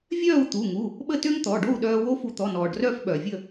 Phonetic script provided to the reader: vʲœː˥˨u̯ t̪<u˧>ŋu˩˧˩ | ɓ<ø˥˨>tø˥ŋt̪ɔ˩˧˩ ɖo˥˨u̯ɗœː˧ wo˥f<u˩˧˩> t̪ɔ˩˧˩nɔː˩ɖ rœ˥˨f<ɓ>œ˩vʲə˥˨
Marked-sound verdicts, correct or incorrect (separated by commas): incorrect, incorrect, incorrect, correct